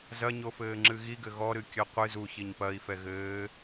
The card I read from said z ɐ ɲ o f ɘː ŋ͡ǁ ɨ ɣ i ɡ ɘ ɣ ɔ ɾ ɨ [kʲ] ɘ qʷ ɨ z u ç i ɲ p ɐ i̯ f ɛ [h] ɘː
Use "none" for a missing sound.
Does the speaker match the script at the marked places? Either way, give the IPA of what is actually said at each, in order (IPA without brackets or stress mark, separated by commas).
kʲ, ɣ